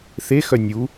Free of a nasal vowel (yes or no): yes